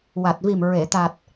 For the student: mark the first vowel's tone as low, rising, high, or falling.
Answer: low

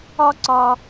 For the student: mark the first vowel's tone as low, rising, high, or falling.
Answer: high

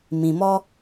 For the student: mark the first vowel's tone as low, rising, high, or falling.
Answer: low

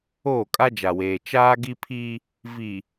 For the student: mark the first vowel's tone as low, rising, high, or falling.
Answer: falling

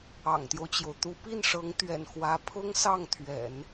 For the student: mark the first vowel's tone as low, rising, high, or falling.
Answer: low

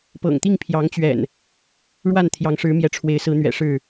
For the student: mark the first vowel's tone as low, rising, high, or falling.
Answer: low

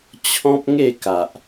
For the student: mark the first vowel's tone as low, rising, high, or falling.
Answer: high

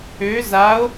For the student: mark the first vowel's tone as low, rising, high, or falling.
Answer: rising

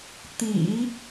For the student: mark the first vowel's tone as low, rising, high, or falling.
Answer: low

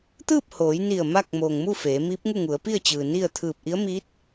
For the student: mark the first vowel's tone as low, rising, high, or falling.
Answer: falling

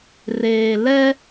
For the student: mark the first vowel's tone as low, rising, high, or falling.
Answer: low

